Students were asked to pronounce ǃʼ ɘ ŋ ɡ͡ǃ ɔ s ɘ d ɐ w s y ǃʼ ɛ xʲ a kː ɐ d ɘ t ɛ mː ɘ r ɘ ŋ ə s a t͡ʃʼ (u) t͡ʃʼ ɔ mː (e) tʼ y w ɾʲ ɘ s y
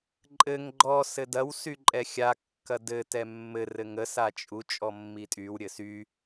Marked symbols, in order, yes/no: yes, no

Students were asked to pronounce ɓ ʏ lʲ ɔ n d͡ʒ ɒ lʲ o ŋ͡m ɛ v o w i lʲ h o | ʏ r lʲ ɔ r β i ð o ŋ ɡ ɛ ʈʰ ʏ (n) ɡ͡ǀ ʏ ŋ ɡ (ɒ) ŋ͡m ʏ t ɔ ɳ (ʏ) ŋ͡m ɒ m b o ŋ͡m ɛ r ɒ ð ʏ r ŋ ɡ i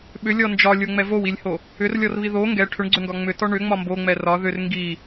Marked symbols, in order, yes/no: no, yes, yes

